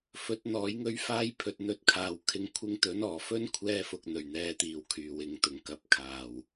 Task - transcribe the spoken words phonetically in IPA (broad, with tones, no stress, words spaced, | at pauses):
fɵ˨˥t̚n̪ɔː˨˥jŋɵ˥ɥfaː˥j pʰɵ˨t̚n̪ɵ˧t̚kʰaː˨w kʰɪ˧ŋ kʷʰɪ˧ŋt̪ɵ˨˥nɔː˨˩fɵ˥n kʷʰɛː˥fʊ˧k̚n̪ɵ˨˩ɥn̪ɛː˨˧ t̪iː˨wkʰyː˨˩wɪ˨˧ŋt̪ʊ˨ŋ kɐ˨p̚kʰaː˨˩w